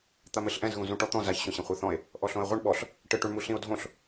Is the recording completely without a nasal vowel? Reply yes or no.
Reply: no